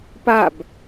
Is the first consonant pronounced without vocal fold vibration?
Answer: yes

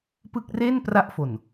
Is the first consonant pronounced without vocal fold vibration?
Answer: yes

